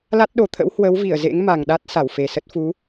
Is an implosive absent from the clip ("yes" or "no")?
no